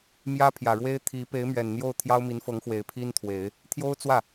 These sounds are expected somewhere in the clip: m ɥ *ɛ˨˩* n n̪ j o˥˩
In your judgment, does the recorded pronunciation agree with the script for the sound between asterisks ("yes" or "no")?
yes